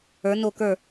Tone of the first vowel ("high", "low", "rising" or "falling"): rising